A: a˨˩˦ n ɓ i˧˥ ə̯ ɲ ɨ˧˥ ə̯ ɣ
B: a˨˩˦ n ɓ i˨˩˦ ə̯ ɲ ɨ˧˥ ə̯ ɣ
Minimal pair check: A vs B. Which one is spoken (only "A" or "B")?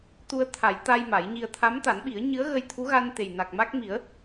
B